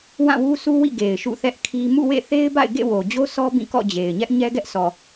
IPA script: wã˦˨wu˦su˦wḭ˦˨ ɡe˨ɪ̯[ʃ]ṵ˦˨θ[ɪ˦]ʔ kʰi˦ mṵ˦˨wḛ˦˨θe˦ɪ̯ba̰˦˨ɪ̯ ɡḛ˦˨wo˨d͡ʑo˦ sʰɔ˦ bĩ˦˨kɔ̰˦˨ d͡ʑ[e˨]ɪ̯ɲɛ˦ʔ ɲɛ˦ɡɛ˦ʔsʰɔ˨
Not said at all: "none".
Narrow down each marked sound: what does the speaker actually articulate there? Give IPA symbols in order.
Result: ʃ, ɛ˦, e˨

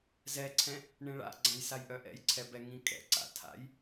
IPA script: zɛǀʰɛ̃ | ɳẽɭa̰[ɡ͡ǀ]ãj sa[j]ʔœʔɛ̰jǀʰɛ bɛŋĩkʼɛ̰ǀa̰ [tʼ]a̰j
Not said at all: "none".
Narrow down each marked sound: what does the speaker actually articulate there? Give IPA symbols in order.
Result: ɡ͡ǀ, j, tʰ

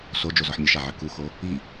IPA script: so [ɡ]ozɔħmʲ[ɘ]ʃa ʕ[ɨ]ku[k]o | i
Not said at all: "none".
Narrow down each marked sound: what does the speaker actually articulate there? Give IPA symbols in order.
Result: d͡ʒ, ɘ, ɨ, x

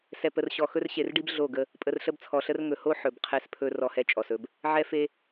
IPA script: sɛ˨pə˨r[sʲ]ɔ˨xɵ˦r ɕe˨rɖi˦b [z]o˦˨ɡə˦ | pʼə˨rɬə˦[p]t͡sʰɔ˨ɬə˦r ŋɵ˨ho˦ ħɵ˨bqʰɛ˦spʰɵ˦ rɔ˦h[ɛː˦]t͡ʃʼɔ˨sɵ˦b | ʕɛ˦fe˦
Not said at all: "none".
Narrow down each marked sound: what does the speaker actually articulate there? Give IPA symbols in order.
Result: ɕ, ɮ, b, ɛ˦

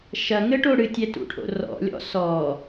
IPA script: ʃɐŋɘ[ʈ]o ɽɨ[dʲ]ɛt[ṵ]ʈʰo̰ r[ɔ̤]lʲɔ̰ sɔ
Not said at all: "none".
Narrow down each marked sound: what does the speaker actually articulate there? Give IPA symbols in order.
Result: ʈ, tʲ, ṵ, ɔ̰

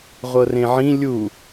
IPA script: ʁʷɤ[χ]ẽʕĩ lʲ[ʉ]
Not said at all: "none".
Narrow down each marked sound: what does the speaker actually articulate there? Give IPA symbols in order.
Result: r, u

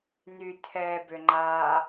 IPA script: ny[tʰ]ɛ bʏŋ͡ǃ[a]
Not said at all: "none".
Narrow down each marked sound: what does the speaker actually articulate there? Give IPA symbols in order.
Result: tʰ, a

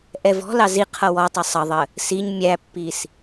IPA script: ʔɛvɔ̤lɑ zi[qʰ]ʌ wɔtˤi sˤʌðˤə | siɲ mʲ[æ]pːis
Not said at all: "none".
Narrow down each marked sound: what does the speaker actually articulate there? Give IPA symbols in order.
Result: qʰ, æ

